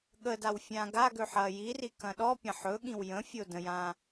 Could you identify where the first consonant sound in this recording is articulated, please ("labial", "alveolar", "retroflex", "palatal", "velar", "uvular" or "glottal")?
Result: velar